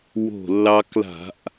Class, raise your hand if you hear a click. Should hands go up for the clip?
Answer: no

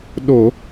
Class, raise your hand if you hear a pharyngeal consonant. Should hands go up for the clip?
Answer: no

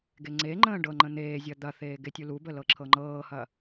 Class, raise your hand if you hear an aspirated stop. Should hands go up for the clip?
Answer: yes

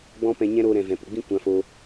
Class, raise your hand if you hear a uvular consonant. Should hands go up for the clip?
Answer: no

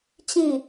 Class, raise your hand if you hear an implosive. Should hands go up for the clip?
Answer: no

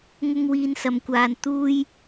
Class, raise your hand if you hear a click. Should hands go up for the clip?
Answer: no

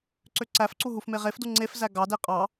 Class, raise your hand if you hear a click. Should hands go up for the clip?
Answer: yes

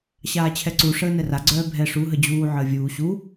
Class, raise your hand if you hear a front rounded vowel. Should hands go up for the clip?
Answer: yes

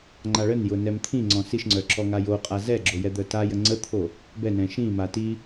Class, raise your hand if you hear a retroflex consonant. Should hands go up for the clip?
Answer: yes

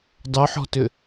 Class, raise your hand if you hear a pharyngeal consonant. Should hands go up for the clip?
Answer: yes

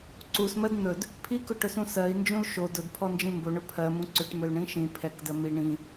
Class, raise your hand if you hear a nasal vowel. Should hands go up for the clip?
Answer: yes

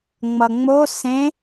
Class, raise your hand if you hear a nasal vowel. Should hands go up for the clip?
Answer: yes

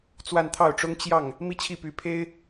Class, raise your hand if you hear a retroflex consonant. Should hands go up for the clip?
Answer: yes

